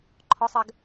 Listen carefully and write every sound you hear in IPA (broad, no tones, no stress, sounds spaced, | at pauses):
ǃʰ ɔ sˤ ɜ ɡ